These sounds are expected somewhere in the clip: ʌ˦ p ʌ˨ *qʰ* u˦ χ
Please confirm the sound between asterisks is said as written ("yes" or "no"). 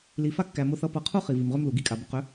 yes